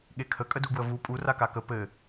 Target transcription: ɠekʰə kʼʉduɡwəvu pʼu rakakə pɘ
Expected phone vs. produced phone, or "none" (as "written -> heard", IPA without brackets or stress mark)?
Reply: ʉ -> ə